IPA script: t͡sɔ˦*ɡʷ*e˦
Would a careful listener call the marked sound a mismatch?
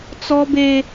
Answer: yes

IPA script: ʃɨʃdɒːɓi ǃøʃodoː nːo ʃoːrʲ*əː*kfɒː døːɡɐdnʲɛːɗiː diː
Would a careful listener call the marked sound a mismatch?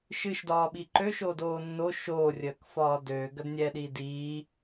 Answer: no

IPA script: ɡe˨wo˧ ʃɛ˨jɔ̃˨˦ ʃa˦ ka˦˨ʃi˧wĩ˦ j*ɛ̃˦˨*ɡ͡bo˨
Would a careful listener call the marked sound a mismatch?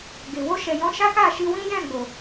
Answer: no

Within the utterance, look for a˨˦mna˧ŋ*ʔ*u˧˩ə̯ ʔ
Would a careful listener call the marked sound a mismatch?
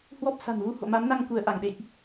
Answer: yes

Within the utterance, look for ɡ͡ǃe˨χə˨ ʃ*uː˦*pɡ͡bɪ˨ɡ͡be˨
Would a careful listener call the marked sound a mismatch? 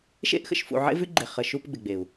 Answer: yes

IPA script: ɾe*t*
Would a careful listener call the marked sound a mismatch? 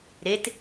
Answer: no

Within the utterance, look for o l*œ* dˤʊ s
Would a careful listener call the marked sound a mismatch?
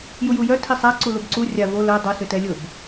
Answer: no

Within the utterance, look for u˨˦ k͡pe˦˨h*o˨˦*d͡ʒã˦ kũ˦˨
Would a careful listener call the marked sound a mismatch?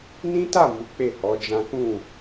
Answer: yes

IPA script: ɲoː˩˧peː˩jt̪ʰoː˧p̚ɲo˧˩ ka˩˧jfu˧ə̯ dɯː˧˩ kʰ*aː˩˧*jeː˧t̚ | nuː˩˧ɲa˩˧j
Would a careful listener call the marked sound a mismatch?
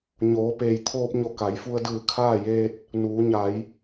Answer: yes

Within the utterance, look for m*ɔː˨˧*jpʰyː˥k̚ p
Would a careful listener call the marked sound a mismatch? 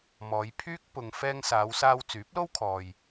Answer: no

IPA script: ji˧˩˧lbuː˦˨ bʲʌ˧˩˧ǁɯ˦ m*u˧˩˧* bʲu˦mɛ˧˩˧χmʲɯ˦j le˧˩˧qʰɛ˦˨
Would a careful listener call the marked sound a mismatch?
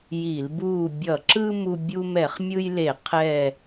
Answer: yes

